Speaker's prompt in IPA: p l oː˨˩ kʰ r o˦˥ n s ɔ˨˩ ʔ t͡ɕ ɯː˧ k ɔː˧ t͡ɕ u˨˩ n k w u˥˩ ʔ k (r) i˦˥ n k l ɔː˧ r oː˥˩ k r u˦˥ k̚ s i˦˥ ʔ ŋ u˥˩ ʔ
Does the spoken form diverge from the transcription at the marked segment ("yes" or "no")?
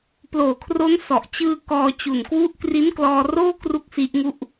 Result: no